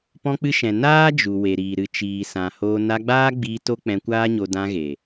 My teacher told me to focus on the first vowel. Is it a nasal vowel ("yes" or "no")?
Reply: yes